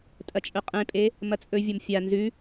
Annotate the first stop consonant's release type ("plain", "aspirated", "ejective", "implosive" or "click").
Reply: ejective